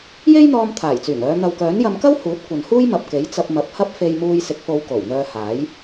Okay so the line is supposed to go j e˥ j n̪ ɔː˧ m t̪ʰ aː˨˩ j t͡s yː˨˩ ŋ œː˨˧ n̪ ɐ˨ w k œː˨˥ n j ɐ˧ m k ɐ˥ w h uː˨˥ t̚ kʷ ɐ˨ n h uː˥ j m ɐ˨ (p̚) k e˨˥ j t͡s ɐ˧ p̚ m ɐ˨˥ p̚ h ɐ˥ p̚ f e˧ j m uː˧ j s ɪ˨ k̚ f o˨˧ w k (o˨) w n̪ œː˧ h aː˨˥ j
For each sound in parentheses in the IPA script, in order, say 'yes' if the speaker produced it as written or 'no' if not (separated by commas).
yes, no